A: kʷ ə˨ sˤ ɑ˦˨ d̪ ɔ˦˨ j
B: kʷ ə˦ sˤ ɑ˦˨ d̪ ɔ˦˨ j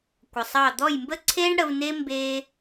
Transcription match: A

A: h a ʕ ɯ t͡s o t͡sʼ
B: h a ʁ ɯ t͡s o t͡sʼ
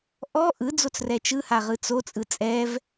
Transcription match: B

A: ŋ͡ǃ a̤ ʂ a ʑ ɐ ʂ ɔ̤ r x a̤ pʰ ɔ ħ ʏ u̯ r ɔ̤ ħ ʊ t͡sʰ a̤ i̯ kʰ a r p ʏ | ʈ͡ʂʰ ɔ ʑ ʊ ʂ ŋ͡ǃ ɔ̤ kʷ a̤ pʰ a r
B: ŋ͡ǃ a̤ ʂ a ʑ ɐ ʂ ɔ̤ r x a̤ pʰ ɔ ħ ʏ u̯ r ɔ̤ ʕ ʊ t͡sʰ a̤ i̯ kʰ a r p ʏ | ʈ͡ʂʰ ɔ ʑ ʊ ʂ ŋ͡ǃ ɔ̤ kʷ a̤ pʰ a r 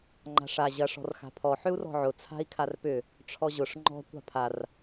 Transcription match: B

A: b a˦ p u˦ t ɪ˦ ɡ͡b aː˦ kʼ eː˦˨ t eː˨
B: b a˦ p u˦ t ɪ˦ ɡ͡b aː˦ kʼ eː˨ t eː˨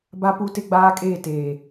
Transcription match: A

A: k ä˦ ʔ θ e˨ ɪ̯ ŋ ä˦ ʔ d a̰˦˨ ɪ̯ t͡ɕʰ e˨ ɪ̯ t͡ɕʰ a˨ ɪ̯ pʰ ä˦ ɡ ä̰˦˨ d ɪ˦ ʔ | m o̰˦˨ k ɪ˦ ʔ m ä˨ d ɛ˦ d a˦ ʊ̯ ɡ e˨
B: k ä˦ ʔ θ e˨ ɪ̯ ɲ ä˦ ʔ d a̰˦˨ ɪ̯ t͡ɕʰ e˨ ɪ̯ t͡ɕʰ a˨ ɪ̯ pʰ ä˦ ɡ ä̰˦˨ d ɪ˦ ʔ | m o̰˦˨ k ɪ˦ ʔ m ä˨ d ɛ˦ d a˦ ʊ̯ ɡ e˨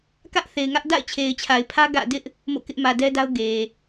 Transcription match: A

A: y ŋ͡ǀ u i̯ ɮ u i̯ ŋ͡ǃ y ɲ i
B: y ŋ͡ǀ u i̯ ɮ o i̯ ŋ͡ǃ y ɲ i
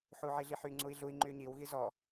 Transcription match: A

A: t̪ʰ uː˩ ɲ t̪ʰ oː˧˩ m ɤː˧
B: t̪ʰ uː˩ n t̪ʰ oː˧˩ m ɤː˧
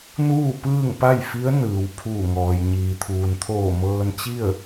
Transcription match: B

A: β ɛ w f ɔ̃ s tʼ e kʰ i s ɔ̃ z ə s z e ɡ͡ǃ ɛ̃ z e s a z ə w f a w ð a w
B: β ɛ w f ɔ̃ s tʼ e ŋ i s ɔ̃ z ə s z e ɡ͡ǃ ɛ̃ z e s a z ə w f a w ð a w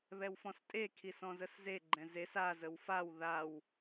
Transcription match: A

